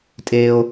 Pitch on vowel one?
high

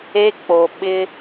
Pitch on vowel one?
high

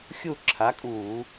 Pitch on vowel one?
falling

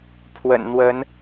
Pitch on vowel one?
low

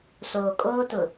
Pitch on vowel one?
low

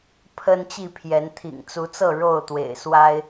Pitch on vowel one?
high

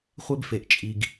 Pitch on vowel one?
high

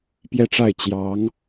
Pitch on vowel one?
falling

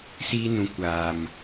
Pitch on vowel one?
high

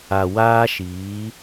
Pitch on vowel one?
low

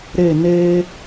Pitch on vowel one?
falling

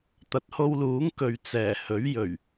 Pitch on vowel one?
low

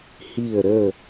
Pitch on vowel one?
falling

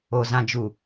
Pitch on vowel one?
low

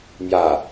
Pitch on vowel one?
low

